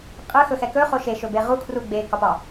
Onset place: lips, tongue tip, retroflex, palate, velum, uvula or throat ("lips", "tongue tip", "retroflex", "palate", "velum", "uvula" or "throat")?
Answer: uvula